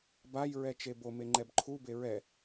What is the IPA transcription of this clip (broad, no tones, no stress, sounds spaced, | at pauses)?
b a j ɹ ɛ t͡ʃ e b o m e ŋ͡ǃ ɛ b ǃʰ u b e ɹ ɛ